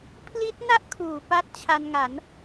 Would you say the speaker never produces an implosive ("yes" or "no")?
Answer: yes